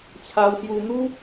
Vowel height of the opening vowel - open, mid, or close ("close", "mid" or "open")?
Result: open